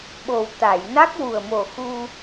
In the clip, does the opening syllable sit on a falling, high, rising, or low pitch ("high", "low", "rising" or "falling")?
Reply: low